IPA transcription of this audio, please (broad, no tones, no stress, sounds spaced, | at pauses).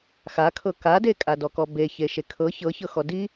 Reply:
x a kʰ ɤ k a d e kʼ a d ɔ k ɔ b e ç e ʃ e kʰ ɤ ç ɤ ç ɤ x ɔ d i